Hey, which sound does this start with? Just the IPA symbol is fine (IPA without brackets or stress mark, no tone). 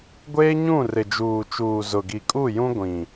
ɡʷ